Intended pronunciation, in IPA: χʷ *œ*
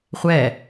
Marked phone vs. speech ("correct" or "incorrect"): incorrect